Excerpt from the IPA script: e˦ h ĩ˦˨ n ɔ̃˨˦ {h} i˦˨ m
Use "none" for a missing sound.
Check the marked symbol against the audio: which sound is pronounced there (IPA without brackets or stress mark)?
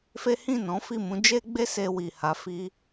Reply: f